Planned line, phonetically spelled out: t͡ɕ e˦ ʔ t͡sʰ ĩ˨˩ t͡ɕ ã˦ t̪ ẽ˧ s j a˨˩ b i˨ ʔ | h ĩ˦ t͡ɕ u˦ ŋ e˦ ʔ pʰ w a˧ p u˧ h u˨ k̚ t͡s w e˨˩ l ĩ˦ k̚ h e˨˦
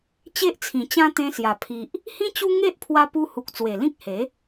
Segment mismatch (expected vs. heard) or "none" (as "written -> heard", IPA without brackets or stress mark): b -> pʰ